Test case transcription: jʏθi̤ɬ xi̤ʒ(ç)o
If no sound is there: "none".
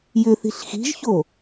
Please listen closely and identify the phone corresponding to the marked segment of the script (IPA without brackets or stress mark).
ç